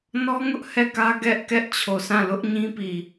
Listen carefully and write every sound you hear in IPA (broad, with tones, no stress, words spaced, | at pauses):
nɔ˦ŋʊ˦ʔ hɛ˦˨kä˦ ɡɛ˦ʔkɛ˦ʔ t͡ɕʰo˨sʰã˦˨ lʊ˦ʔɲĩ˦pi˨